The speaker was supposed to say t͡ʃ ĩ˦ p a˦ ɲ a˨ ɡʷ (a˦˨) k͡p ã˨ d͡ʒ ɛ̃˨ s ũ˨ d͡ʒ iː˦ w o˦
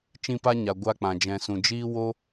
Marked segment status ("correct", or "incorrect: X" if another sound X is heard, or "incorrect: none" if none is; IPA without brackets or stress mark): incorrect: a˧